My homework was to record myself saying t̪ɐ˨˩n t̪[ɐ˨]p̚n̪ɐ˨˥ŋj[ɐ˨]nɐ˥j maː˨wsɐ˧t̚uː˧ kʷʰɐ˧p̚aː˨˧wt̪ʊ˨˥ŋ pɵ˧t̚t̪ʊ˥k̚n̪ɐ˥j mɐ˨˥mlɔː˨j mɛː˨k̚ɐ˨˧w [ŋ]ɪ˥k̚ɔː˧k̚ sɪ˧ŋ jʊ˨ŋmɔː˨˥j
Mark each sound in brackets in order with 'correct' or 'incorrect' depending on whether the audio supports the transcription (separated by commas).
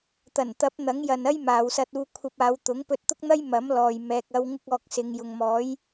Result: incorrect, correct, correct